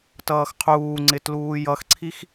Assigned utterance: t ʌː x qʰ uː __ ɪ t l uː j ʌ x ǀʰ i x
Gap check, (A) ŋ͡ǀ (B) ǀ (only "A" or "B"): A